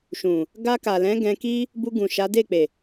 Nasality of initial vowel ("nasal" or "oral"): nasal